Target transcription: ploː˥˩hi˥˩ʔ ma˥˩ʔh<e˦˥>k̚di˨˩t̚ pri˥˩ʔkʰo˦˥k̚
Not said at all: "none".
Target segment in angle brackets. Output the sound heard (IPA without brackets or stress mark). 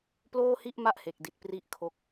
e˨˩